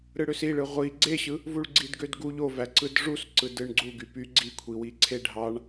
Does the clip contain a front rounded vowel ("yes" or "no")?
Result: yes